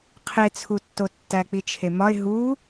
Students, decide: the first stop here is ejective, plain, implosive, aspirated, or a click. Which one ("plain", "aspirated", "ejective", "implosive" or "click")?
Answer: aspirated